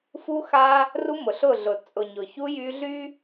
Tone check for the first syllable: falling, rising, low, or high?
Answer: high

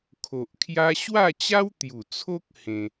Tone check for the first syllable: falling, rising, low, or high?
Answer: low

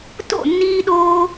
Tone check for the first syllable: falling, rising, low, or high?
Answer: falling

